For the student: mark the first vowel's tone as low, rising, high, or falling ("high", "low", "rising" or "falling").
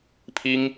high